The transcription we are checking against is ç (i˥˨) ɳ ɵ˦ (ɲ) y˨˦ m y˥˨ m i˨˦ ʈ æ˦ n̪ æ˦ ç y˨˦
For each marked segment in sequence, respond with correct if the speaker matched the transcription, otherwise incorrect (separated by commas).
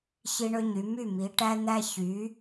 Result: incorrect, correct